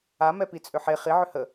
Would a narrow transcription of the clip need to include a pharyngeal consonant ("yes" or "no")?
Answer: yes